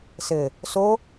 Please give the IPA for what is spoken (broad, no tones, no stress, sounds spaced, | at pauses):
s ɘ | s o